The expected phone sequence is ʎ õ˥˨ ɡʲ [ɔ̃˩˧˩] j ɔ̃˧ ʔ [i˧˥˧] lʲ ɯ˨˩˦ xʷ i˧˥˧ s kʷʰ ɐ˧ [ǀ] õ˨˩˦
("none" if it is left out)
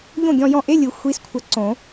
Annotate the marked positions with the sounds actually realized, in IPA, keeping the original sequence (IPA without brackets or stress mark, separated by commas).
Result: ɔ̃˧, e˧˥˧, ǀ